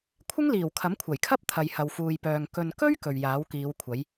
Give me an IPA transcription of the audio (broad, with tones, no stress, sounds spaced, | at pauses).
kʷʰ ɪ˥ ŋ l iː˨˩ w kʰ ɐ˨˥ m kʷʰ ɐ˨˩ j kʰ ɐ˥ p̚ t̪ʰ ɐ˨ j h ɐ˨ w f uː˨ j p œː˨ ŋ k ɵ˨ n k ɵ˥ ɥ k ɵ˨ ɥ j aː˨˥ w k iː˨˧ w kʷʰ ɐ˨˥ j